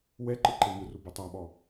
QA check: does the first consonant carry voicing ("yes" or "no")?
yes